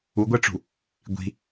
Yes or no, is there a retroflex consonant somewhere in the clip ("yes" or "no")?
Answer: yes